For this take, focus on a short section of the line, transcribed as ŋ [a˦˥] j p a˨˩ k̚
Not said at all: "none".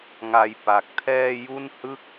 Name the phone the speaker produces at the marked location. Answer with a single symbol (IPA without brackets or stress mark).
a˧